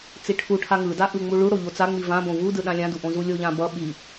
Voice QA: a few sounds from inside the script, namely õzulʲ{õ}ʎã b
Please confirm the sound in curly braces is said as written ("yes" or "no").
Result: no